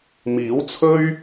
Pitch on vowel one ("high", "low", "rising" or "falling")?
rising